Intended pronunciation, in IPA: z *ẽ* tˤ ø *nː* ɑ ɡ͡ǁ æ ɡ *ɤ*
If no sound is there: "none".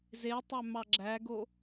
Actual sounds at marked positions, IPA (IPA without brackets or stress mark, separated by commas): e, m, o